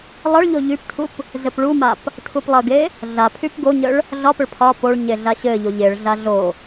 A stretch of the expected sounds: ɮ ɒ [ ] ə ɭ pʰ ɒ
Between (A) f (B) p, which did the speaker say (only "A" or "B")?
B